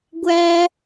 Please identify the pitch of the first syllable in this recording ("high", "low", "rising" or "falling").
high